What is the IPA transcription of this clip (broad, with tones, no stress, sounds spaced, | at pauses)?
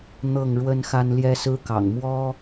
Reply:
n̪ ɤ˥˩ ŋ ɻ w ə˥ n x a˥ n l j ɛ˥ s ɹ̩˥ k ɑ̰˨˩ ŋ m w ɔ˥